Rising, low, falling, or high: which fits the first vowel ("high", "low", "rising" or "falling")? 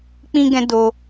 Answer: high